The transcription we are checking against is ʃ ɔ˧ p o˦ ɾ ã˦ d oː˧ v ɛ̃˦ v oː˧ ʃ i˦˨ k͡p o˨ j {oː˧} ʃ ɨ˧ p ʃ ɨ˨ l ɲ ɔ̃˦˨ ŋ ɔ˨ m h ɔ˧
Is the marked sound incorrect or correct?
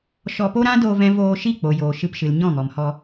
incorrect